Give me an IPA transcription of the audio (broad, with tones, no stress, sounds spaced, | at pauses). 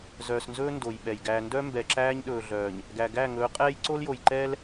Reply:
z œː˨ s n z ɵː˦ n d o˨ j ɓ ɛ˨ j ɡ æ˨ n d œ˦ m b ɛ˨ ǁ æː˦ ɲ ɗ ɵː˨ ɮ œː˨ ɲ | ɡ æ˨ ɡ æ˦˨ ŋ ɵː˨˦ qʼ ɛː˦ j ǀ o˦ l j o˨ j ǃ ɛː˦ l